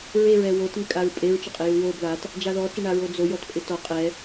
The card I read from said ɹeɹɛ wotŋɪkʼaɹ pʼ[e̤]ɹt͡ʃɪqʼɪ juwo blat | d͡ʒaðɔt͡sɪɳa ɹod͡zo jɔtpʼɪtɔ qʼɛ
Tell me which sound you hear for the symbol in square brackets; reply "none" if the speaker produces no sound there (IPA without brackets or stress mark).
e